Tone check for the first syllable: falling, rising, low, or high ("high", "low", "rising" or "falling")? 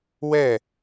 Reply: falling